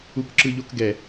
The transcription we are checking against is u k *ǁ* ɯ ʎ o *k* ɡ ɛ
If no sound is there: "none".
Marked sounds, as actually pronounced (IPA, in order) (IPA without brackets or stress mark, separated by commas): ǁ, k